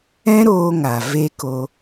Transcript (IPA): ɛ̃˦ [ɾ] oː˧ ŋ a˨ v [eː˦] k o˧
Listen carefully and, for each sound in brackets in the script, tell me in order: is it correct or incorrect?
correct, incorrect: e˦

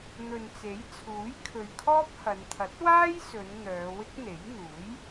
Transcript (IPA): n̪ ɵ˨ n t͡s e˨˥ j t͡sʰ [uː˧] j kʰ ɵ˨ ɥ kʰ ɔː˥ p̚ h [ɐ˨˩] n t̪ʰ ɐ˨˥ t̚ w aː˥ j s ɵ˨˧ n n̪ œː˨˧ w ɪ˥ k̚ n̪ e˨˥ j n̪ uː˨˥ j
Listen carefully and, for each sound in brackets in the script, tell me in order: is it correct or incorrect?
incorrect: uː˨˥, incorrect: ɐ˨˧

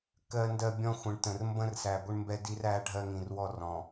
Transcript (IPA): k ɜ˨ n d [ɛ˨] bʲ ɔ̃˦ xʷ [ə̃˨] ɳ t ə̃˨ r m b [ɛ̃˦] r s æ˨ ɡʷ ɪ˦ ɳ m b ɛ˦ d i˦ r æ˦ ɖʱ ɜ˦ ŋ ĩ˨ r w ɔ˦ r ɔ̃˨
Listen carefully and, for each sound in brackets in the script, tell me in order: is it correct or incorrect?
incorrect: ɜ˨, correct, incorrect: ə̃˦

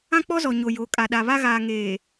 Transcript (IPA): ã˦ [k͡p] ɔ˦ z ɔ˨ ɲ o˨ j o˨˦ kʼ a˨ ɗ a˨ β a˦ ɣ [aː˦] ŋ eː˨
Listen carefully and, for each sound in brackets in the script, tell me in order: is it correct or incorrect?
correct, incorrect: aː˨

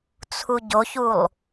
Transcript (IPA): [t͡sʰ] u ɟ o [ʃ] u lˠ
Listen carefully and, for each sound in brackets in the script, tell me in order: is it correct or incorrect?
correct, incorrect: ç

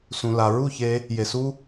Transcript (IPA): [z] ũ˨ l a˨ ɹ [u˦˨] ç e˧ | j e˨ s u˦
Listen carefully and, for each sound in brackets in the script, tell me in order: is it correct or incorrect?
incorrect: s, correct

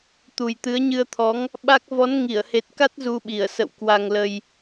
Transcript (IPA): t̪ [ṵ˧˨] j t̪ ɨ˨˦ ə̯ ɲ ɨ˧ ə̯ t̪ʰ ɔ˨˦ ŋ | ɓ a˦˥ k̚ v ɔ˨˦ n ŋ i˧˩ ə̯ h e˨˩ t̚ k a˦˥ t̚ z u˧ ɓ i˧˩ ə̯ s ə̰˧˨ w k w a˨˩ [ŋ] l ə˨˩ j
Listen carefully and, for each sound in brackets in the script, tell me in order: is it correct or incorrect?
incorrect: u˨˩, correct

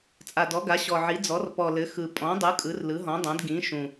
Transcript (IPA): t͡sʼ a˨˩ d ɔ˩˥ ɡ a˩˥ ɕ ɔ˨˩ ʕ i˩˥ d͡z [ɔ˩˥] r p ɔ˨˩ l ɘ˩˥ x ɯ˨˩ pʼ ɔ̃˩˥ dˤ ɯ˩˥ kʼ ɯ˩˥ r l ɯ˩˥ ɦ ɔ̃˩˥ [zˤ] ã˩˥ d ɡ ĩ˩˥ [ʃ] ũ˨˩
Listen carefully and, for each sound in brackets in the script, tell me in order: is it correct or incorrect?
correct, incorrect: dˤ, correct

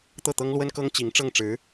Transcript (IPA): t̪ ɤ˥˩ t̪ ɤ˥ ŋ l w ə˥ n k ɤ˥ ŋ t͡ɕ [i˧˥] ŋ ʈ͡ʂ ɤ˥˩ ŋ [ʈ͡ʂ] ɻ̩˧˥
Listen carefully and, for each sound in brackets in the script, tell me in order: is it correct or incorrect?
correct, correct

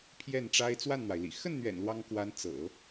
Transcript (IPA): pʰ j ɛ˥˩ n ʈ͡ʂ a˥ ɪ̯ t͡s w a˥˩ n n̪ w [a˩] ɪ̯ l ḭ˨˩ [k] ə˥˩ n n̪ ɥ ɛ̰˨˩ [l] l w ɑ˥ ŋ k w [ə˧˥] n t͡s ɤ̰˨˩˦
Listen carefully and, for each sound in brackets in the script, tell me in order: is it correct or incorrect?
correct, incorrect: x, incorrect: n, incorrect: a˧˥

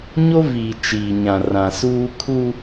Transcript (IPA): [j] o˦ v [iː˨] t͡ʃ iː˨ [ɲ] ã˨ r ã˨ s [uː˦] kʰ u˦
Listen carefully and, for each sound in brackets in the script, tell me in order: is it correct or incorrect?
incorrect: ɲ, correct, correct, correct

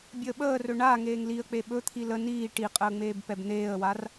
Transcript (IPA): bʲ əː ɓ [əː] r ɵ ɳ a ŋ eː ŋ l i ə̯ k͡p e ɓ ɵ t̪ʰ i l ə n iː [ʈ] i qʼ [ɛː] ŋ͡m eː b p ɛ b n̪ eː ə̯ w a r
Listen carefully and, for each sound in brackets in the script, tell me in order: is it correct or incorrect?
correct, correct, incorrect: əː

